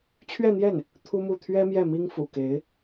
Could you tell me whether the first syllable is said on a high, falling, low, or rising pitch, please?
falling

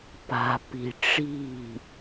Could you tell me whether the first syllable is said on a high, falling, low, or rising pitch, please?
low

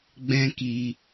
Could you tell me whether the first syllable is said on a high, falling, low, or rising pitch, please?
high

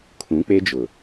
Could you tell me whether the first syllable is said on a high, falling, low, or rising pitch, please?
rising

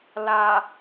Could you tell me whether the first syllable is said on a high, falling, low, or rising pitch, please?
low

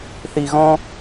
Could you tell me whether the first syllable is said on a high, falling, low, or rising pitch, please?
low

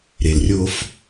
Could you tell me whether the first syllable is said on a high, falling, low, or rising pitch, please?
low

